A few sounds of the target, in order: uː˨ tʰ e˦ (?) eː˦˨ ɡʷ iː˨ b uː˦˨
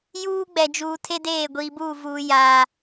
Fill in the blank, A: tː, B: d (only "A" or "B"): B